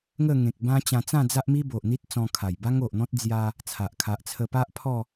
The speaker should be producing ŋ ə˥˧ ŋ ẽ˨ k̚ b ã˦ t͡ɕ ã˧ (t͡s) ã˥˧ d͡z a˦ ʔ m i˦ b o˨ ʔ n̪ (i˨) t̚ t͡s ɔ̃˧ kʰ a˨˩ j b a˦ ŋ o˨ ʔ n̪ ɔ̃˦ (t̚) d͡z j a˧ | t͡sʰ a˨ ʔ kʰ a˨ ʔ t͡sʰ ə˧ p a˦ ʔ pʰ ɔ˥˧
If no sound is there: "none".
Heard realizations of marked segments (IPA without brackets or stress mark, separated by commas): t͡s, i˦, t̚